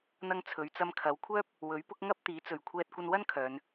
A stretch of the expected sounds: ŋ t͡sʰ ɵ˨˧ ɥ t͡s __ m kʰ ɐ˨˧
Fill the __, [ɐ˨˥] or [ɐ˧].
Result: ɐ˧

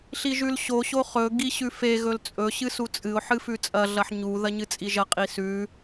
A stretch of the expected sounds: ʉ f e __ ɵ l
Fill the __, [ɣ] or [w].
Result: ɣ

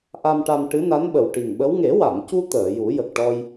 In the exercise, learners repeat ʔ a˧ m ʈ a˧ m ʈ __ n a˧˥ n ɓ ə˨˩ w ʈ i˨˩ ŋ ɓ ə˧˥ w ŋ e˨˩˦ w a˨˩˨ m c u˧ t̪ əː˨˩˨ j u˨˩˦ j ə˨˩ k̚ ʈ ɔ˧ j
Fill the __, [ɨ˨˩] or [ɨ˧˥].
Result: ɨ˧˥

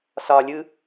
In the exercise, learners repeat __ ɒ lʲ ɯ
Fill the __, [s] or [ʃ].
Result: s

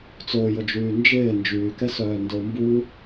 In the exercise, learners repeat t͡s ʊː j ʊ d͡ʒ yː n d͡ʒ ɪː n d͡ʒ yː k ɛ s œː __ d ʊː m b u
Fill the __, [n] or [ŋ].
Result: n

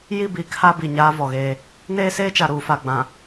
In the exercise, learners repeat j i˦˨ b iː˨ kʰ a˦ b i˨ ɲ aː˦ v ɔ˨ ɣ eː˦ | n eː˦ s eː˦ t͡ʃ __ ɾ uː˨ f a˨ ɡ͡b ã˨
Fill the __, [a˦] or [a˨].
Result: a˨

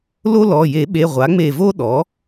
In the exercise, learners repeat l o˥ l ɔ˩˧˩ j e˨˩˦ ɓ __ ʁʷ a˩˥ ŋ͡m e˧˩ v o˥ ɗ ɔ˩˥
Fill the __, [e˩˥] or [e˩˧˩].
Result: e˩˧˩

